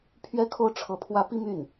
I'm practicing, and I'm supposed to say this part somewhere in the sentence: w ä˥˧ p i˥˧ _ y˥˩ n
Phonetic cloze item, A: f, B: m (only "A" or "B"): B